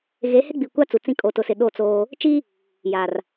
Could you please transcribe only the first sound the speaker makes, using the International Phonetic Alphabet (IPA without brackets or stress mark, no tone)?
ɣ